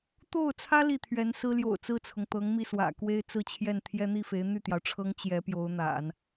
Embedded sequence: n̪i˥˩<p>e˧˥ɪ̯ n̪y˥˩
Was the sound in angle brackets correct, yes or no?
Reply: no